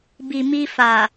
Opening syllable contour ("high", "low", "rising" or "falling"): low